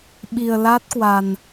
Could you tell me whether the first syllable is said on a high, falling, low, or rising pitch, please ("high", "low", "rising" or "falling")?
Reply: low